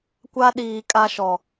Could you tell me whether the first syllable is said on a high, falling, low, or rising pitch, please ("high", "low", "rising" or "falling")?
high